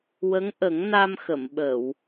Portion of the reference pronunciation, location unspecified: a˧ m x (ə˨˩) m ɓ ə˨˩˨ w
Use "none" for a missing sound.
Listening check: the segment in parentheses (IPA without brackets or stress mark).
ə˨˩˨